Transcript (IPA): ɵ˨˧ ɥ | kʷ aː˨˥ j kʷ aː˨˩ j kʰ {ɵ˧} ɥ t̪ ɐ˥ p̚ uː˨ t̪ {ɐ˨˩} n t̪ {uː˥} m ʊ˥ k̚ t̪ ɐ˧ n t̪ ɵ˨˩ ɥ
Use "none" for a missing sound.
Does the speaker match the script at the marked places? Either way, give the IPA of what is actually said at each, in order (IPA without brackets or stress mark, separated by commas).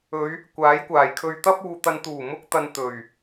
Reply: ɵ˧, ɐ˧, uː˨˩